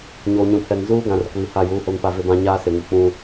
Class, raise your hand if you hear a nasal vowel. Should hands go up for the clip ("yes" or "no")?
yes